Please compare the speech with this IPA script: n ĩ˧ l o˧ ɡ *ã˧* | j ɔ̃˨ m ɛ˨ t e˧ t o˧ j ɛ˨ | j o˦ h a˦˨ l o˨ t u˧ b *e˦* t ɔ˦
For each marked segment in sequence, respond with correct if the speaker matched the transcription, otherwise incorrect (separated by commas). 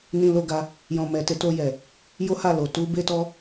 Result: incorrect, correct